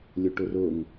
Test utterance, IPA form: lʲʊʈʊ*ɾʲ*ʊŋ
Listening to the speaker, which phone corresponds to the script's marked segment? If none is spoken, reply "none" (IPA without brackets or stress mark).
r